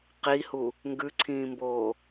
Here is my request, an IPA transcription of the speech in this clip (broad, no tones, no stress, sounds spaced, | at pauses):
q i h u | ŋ ɡ ʉ ǀʰ ĩː m b oː